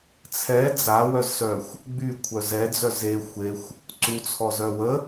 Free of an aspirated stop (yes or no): no